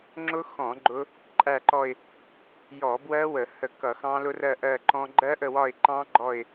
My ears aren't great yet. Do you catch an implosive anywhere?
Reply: no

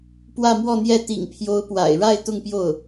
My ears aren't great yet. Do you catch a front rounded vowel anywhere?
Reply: no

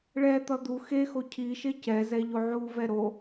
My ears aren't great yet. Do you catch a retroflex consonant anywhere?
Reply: yes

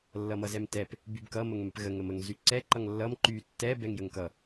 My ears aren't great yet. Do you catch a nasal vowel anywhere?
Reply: no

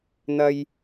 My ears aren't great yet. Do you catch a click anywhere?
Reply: no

